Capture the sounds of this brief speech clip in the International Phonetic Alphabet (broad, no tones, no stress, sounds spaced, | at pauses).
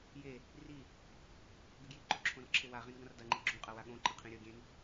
j e | r i | ɡ ɨ ɡ j i ǃ o ǁʰ õ r ǁʰ e w a ʁ ĩ n ɡ ɐ̃ r d ɐ ŋ͡ǃ i ɡ͡ǁ ũ qʼ ɐ w a ɠ õ ǃ ɐ̃ qʰ ĩ ɾʲ ɵ ɡʲ ẽ n